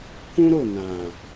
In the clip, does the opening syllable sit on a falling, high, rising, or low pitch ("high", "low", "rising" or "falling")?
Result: high